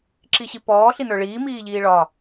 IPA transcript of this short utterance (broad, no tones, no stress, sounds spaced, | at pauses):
ǁ i ɕ i p ɔː ɬ i n ə˞ ɭ iː m iː ʎ iː ɭ ɒ